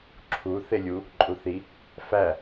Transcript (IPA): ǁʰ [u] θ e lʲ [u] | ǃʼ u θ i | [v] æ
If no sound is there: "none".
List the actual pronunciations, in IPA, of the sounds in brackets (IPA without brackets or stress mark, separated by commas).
u, u, f